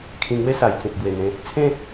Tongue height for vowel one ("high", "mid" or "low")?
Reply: high